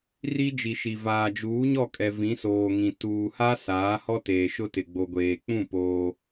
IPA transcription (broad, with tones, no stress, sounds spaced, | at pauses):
r i˦ d͡ʒ i˨ ʃ i˨ v aː˨ d͡ʒ uː˨˦ ɲ ɔ˦˨ kʼ ɛ˨ v ĩ˨˦ s oː˨ ŋ ĩ˨ t uː˨ h a˦ s aː˨˦ h ɔ˦ t eː˨ ʃ ʊ˦ t ɪ˨ ɡ͡b o˨ ɡʷ eː˨ k͡p ũ˦˨ p oː˦